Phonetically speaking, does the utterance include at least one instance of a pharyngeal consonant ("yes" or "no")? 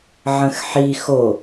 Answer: yes